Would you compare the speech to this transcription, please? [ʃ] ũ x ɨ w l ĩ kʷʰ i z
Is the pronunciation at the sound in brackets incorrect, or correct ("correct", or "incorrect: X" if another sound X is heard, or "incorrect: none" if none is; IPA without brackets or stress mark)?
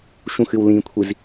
correct